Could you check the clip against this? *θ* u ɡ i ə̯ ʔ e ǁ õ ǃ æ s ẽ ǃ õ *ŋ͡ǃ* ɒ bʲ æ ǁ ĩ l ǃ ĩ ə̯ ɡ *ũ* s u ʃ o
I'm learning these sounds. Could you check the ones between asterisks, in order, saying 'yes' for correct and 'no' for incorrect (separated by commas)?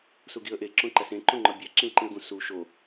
no, yes, yes